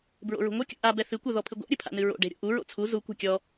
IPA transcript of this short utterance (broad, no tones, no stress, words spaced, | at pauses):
bɹo̰ɹṳŋʷɨ kʲṵʔa bɛθɨ kʷɛðɔpʰɨɡʷa̰ ɾʲɨpʰa̰nɨɹo̰ ɖe̤ɾʲo̰ʔu ɹo̰t͡sʰu zu kʷa̤kʲɔ